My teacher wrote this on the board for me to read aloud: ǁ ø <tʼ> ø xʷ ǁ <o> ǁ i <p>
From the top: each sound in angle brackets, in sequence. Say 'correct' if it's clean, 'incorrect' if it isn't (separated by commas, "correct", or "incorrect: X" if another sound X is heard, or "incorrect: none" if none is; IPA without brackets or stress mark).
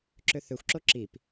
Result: incorrect: θ, correct, correct